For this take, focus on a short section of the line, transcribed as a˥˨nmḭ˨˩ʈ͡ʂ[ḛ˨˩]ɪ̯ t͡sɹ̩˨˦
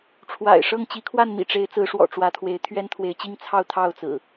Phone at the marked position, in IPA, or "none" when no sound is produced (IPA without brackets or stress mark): e˨˦